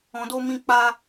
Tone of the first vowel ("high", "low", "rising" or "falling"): low